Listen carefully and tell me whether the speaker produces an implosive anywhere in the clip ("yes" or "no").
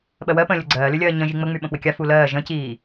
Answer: yes